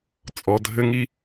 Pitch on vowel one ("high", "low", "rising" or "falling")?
low